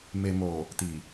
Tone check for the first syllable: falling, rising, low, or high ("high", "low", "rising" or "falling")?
low